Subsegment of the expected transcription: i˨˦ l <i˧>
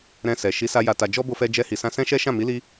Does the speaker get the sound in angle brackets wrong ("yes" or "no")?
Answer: no